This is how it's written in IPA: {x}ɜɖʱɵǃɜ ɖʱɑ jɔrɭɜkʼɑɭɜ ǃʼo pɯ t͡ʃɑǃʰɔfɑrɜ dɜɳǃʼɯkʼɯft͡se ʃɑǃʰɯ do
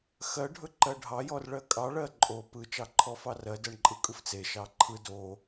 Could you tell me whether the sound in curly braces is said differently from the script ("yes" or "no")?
no